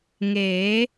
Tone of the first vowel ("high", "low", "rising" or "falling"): rising